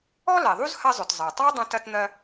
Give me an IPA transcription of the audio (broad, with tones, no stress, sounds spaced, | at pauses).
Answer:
ɔ˥ l ɛ˩ ðˤ u˥ z h ɐ˥ zˤ ʊ˩ t zˤ ɜ˩ tˤ ɑ˥ dˤ ɐ̃˥ t ɐ˥ t n̪ ɜ˥